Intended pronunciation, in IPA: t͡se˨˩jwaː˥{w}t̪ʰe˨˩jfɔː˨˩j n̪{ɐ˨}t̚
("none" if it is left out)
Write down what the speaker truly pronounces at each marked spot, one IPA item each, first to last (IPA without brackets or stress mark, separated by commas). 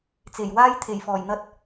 j, ɐ˥